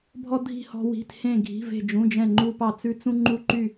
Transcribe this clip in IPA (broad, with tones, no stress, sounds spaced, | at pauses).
bʱ ɔ˥ dʱ i̤˥˧ h ɔ̤˥ w i̤˧˥˧ t h ẽ˥˧ ɡʱ i̤˧˥˧ v e̤˥˧ d͡ʒ ũ˧˥˧ d͡ʒ ɛ̃˥˧ ŋ͡ǃ u˥ p ɑ˥˧ t͡s ʉ˥ t͡s ũ˥ ŋ͡ǃ u˥˧ ǃ y˥˧